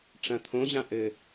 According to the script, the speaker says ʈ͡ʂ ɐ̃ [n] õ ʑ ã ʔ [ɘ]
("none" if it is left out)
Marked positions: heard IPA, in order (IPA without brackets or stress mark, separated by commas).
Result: t̪ʰ, ɘ